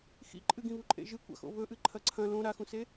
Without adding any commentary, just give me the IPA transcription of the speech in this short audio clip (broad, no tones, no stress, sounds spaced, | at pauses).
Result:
x ḭ ǃʼ ɨ ɡ ĩ β u ǃʼ ḛ ʒ ɨ kʷ a̰ x o̰ β ɵ ʔ ɨ ǃʰ ɐ ǀʰ ɐ̃ l õ ɾ a x ũ s e